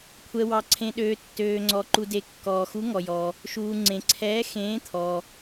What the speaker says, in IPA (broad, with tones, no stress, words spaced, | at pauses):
kʷʰɛ˨wɑ˨ǀʰẽ˨ɗøː˨ tːøː˨ŋ͡ǀɔ˨ǃu˨de˨ kːɔː˨xu˧˥ŋɔ˨jɔː˨ | ʃuː˨ ŋ͡ǀẽ˨ǀʰɛː˧˥ xẽː˧˥ t̪ʰɔː˨